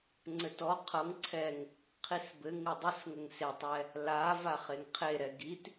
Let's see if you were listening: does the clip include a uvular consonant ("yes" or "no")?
yes